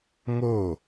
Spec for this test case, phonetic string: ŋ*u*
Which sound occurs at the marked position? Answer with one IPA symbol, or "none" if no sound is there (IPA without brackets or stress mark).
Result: o